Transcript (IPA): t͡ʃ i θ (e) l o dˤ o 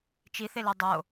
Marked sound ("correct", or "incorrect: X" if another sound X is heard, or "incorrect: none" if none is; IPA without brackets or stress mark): correct